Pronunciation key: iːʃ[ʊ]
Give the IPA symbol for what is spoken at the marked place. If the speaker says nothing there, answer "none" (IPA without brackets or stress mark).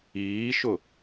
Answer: ʊ